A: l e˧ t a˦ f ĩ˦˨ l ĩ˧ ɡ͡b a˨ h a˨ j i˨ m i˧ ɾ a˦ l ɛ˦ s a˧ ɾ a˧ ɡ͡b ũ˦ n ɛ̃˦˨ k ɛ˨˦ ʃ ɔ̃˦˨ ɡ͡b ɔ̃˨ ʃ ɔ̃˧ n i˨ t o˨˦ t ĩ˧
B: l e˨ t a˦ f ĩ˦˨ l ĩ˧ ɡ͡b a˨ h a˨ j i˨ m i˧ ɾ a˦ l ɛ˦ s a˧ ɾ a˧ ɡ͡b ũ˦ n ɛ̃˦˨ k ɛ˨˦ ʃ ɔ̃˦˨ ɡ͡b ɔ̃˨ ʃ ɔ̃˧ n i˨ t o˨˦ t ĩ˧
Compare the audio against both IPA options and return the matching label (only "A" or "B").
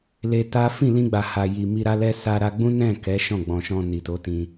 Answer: A